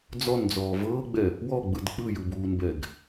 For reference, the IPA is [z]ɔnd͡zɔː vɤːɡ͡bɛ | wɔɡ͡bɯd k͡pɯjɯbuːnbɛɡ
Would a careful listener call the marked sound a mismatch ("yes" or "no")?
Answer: yes